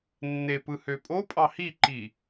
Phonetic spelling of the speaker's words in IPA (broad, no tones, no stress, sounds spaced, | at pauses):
nː e p ɯ h ø pʼ o pʼ ɑ h i ǃ i